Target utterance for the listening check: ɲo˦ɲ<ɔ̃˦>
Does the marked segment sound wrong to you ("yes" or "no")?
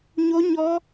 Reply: yes